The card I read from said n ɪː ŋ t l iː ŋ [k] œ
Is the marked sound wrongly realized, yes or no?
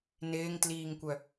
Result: yes